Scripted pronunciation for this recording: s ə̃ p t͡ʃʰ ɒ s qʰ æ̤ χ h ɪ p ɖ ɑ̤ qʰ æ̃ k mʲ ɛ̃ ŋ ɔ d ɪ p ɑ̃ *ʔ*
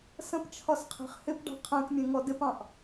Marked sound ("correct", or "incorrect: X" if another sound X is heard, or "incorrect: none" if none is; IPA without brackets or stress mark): correct